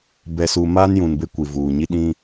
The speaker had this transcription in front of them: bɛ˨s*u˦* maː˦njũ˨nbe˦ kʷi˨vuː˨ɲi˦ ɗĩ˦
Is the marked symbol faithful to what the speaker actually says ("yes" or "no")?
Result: no